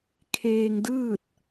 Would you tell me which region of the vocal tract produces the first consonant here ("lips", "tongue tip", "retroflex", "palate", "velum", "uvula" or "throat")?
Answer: velum